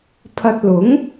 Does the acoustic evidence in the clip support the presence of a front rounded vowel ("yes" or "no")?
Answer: no